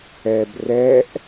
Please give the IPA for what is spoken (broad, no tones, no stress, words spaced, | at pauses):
ɛb rɛʔ